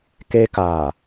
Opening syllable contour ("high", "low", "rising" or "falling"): high